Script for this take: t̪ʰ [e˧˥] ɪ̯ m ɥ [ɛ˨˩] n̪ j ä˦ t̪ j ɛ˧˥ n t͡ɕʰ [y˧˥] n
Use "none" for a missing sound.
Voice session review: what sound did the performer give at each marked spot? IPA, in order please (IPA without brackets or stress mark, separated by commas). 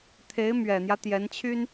e˧˥, ɛ˨˩, y˥